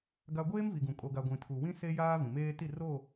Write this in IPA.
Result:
ɡ a˦ ɡʷ eː˦ m v i˨ ɡ ũ˨ kʼ o˨ ɡ a˨ ɡʷ ĩ˨ tʰ u˨ w ĩ˦ s e˦ j aː˦ v ĩ˨ m eː˦ t i˦˨ r o˦˨

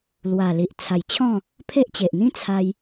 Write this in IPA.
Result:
l w a˨˩ l i˨ ʔ t͡sʰ a˨˩ j t͡ɕʰ ɔ̃˥˧ | pʰ e˦ ʔ t͡ɕ e˨ ʔ n̪ ĩ˦ t͡sʰ a˧ j

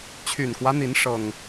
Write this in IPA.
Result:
t͡ɕʰ y˨˩ n k w ä˦ n̪ i˨˦ n ʂ ɤ˨˩ ŋ

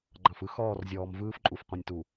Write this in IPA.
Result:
ɡ͡ǃ ɑ̃˨ f ɯ˦ x ɔː˦˨ r zʲ ɔː˨ m v ɯː˦ f ǃʼ u˨ f qʷ ĩ˨ nʲ t u˨

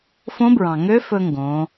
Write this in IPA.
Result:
f õ˧˥ b ɹ ɑ̃˩ ŋ ø˧˥ f ɵ˧ ŋ ɡ õ˩˧

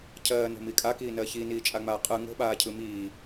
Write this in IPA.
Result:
cʰ ɜː n o̤ m i kʼ a k iː n ɜ ç i n iː t͡ʃʼ a ŋ͡m aː qʼ ɯ ŋ o̤ ɓ aː cʰ ɯ m iː

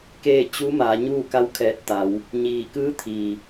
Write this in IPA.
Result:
k eː˥˨ t͡ɕ u˧˥ m aː˩˧ ɲ uː˥˨ k a˧˥ w kʰ ɛː˧˩ t̚ t̪ a˩˧ w | ɲ iː˧˩ k ɯː˧˥ t̪ʰ iː˩

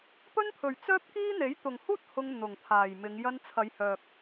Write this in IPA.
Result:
p ɵ˥ n pʰ ɵ˨ ɥ t͡s œː˥ p̚ k iː˥ n̪ e˨˥ j t̪ ʊ˨ ŋ h uː˥ t̚ h ʊ˧ ŋ n̪ ʊ˨ ŋ t̪ʰ aː˨ j m ɪ˨˧ ŋ j ɐ˧ n t͡sʰ ɐ˨˧ j h œː˨ k̚

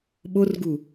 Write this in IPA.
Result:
ɓ o r ɡ u

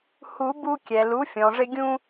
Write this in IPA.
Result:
h u˨˩˦ b u˧ kʲ ɛ˩ l u˩˥ fʲ ɔ̃˩ ʐ ɪ˧ ɡʲ ũ˧

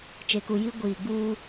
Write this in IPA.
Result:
t͡ʃ e˨ k u˨ j i˦ ɡʷ iː˨ ɡ͡b uː˦

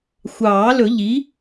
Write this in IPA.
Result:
xʷ ɑː˨˩˦ l ɵ˨˩˦ ʎ i˩˥

